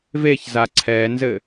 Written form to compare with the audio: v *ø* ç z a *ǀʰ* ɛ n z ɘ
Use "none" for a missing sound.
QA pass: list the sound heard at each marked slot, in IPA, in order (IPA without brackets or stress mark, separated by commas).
e, ǀʰ